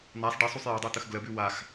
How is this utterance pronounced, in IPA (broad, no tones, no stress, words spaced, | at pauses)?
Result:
n̪asˤ ɖesˤusˤ jɔdˤut̪əx ɡləbʉ wax